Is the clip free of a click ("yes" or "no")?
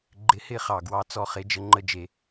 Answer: no